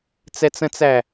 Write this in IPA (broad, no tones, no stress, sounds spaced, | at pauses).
t͡s ɛ t͡s ə̃ t͡s æ